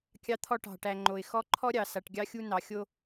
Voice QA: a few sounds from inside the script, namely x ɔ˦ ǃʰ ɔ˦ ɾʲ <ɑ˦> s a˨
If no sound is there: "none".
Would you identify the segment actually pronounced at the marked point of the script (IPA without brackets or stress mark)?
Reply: ɑ˨